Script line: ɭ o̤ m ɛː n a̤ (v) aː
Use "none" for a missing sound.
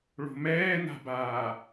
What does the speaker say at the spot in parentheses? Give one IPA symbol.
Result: b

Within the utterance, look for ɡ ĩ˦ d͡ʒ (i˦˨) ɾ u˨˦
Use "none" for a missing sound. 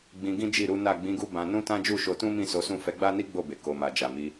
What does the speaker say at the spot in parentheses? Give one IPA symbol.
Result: i˦˨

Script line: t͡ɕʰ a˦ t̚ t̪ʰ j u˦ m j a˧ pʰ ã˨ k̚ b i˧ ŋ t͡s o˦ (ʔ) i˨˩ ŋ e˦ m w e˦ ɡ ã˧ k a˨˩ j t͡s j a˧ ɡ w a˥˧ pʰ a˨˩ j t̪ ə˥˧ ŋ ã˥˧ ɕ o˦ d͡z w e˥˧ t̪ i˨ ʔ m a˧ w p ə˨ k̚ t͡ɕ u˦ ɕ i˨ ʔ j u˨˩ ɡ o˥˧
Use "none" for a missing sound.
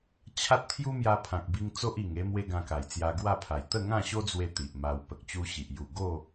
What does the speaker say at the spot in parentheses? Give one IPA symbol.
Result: ʔ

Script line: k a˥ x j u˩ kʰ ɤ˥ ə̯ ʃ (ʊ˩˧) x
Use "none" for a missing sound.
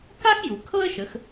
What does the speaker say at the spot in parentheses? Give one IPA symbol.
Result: ə˩˧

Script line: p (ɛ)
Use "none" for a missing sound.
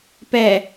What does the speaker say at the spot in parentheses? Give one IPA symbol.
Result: ɛ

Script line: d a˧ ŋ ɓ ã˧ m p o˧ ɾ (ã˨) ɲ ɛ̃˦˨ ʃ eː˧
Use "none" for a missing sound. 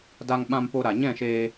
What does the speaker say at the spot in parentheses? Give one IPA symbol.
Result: a˨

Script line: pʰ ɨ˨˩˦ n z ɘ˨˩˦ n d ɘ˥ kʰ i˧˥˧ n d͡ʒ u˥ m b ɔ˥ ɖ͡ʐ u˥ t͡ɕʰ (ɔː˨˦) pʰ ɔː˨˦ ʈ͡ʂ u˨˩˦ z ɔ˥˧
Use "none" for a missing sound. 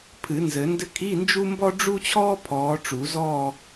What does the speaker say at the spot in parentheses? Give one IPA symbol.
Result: ɔː˥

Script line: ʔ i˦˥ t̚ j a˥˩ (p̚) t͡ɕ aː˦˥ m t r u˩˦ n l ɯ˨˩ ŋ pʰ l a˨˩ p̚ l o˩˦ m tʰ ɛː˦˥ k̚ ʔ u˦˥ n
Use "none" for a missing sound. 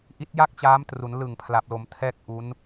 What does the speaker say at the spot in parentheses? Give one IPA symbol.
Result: k̚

